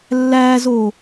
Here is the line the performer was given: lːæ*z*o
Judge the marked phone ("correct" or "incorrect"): correct